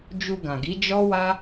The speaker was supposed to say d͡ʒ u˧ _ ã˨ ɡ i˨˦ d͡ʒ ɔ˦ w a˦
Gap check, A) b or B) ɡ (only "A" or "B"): B